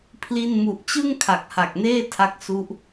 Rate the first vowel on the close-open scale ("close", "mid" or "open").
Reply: close